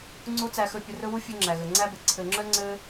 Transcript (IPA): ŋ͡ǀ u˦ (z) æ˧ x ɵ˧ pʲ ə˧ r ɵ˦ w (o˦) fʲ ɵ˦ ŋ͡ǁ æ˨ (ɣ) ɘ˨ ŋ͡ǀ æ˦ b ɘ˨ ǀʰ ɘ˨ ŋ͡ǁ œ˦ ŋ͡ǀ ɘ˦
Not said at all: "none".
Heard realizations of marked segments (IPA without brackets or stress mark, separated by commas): t͡s, u˦, ɣ